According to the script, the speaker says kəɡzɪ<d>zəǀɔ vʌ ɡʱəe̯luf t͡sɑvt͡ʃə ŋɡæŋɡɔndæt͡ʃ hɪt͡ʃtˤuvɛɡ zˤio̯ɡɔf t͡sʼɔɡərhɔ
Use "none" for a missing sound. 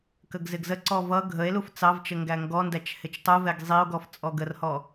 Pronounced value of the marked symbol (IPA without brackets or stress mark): ɡ